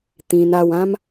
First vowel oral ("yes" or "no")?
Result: no